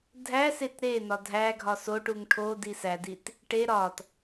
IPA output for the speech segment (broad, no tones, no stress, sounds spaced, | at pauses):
dʱ æ s e t ɾ e n̪ ɒ dʱ æ ɡʱ ɒ s o ʈ u ŋ ʈʰ o d i s æ d i t | ʈ e ɾ ɒ t